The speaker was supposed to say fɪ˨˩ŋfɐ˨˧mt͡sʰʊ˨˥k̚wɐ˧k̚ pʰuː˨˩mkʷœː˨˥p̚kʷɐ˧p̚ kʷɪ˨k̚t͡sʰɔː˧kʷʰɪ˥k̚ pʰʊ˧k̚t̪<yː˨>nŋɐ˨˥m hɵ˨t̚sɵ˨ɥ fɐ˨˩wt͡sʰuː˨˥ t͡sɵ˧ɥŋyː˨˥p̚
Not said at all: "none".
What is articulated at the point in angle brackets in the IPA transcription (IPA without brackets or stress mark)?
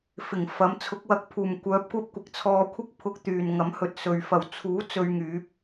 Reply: yː˨